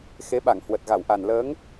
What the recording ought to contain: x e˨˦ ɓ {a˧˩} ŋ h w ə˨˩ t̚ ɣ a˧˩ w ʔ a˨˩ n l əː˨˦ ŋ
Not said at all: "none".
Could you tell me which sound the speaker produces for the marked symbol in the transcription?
a˧˩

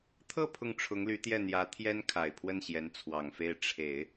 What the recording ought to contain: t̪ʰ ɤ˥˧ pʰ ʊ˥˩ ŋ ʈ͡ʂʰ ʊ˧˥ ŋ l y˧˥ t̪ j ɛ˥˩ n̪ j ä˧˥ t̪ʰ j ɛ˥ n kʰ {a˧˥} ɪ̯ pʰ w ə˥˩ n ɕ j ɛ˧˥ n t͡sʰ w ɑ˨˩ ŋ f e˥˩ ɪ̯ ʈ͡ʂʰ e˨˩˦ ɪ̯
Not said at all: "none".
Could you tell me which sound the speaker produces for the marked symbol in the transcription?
a˨˩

